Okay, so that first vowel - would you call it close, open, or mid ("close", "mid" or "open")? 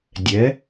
mid